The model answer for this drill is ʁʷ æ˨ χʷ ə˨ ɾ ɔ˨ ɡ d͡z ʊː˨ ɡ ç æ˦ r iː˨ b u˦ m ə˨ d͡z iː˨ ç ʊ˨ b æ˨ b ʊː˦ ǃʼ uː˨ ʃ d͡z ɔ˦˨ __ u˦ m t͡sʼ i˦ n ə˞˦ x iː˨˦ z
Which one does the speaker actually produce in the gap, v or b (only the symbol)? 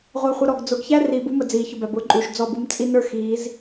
b